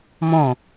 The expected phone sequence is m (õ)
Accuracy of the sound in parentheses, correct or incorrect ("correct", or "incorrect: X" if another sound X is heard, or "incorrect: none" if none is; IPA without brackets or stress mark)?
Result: correct